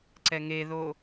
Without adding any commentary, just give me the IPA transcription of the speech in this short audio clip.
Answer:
ǀ ɛ ŋ e ð o

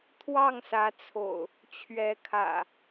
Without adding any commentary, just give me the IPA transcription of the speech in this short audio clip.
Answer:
t̪ʰ w ɑ˥˨ ŋ s ä˨˦ t͡sʰ o̰˨˩ ʊ̯ | t͡ɕʰ ɥ ɛ˨˦ kʰ ä̰˨˩

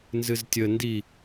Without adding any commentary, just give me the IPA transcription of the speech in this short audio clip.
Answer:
n z ɨ z tʲ ə n d i

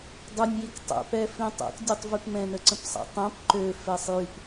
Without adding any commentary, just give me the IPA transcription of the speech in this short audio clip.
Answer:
dˤ ʏ nʲ j i k tˤ ɛ̰ p ɛ f ĩ tˤ ɛ̰ k dʲ u tˤ v y p m ɛ̃ n ə ǀ ə̃ p sˤ a̰ tˤ ɛ̃ p ǃ ø f ɛ sˤ j y p

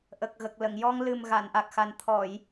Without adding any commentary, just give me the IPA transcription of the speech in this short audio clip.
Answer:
ʔ ə˨˩ k̚ ɣ ə˨˩ k̚ l ə˨˩˨ ŋ j ɔ˧ ŋ l ɨ˨˩ m ɣ a˨˩˨ n ʔ a˨˩ k̚ x a˨˩ n t̪ʰ ɔ˨˩˨ j

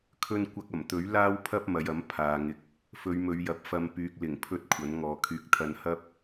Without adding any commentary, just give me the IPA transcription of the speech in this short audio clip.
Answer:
kʰ ɵ˧ n kʷ ɐ˧ k̚ ɐ˨˩ m t̪ ɵ˨˥ ɥ l aː˥ w pʰ ɐ˥ p̚ m ɐ˨˧ j ɐ˨˥ m pʰ aː˨ ŋ ɪ˨ k̚ | f ɵ˨˧ ɥ m ɵ˨˧ ɥ j ɐ˨˥ p̚ f ɐ˧ m p yː˨ k̚ l ɪ˨˩ ŋ pʰ ɵ˧ t̚ kʷʰ ɐ˨˥ n ŋ ɔː˨ kʰ yː˧ k̚ t̪ʰ ɐ˧ n h ɐ˥ p̚

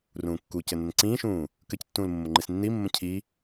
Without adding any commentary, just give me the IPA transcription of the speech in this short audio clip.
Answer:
r ũː kː u c ɘ n ə n ǀ ĩː ʃ ũː | k ɘ c tː ũː l mː ʊ ŋ͡ǃ i s nː i mː ə̃ cʰ i

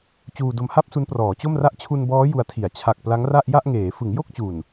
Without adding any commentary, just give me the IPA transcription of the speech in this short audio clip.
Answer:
t͡ɕ uː˧ d o˧ m h a˥˩ p̚ s u˦˥ n p r ɔː˩˦ t͡ɕ o˥˩ m r a˥˩ ʔ t͡ɕʰ u˧ n b ɔː˦˥ j u˧ a̯ tʰ i˨˩ a̯ t͡ɕʰ a˨˩ k̚ p l a˦˥ ŋ r a˥˩ ʔ j a˥˩ ʔ ŋ eː˩˦ f ɯ˩˦ ŋ j o˥˩ k̚ t͡ɕ u˨˩ n

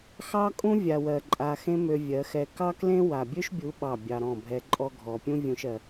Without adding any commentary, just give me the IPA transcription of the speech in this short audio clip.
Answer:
x ɑ˦ kʼ ũ˦ vʲ a˧ w ɜ˧ ǃʼ a˧ x ẽ˦ m ø˧ vʲ ɜ˨˦ x ɛ˧ k ɑ˦ k l ẽ˦ w a˨ bʲ ø˦ ʃ bʲ u˨˦ ɓ ɑ˦˨ bʲ ɑ˧ ɾ ɔ̃˦˨ bʱ ɛ˦ ǃʼ ɔ˦ ɡʱ ɔ˨ pʲ ũ˦ vʲ ũ˧ ʃ ɜ˧

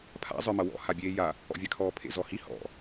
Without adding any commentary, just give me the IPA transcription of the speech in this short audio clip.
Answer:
pʰ a̰ zˤ ə˞ m ʌ w ɔ̰ h a bʲ eː j a | ɔ̰ vʲ a kʰ ɔː pʰ ḛ z ɔ h i h ɔ̰

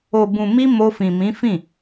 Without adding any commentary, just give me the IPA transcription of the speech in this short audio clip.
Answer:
o˨ b ũ˨ m i˧ m o˧ f ĩ˨ m ĩ˨˦ f ĩ˦˨

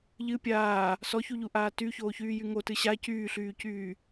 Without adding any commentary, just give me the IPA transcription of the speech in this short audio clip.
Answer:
ʎ ɨ pʲ aː | s ɔ ç u ʎ u ʔ aː t y ç oː ç yː j y ŋ o t ɨ ɕ a c yː ɬ yː c yː

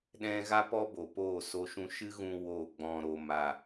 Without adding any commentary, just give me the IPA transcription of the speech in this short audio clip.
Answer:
ɗ ɛ̃˦ ɣ a˦ p ɔ˦ b o˨ p oː˦˨ s o˧ ʃ ũ˧ ʃ ɨ˦ ɣ ũ˧ w o˦˨ ɡ͡b ɔ̃˨ ɾ o˨ m a˨

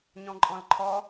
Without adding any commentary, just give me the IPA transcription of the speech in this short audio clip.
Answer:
ɲ ɔ̃ ǃʼ ɔ̃ l ǃʰ ɔ

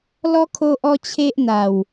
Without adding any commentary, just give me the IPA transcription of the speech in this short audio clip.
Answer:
l ɔ˦ kʰ o˦ ʔ ɔ˦ t͡ɕʰ e˦ ʔ n̪ a˨˩ w

